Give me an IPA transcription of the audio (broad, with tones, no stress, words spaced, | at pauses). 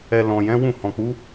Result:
ɛ˨ lɔ̃˨jɛ̃˨˦ wũ˦˨hɔ̃˨k͡pu˨˦